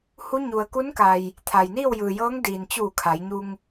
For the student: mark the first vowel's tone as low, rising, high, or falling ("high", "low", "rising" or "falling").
rising